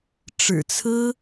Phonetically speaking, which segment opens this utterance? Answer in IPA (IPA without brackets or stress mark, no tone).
ʈ͡ʂ